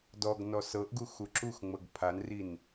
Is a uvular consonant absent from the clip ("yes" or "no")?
yes